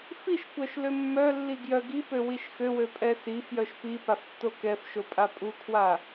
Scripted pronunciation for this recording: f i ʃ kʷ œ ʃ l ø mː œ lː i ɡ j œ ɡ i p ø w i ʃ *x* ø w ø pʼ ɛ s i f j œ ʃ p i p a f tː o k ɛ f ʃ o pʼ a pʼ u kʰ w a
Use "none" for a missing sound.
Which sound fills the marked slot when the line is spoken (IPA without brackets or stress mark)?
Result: x